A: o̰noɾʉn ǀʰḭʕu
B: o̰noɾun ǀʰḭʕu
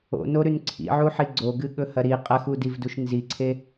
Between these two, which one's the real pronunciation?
A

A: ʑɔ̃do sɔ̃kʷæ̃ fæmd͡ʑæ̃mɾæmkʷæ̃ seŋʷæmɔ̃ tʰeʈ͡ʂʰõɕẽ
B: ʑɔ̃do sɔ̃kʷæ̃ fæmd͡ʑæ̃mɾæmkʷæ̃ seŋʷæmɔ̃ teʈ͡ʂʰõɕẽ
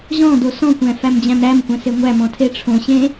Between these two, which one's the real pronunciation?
A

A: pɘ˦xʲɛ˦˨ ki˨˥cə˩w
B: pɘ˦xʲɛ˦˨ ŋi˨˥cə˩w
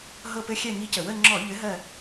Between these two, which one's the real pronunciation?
B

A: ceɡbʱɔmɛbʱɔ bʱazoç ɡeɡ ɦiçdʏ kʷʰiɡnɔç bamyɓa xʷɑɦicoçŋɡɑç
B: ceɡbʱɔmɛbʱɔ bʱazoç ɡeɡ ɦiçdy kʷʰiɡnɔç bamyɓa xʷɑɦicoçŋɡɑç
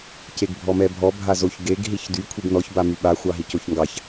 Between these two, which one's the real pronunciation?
B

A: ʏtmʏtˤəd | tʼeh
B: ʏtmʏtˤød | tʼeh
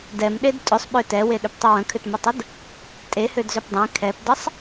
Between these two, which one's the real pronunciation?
A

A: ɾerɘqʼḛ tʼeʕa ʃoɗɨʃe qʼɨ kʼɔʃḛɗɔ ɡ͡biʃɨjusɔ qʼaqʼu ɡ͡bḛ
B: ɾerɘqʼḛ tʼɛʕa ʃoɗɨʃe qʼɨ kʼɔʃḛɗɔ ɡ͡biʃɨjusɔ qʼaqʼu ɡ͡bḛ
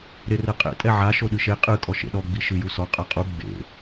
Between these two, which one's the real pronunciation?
B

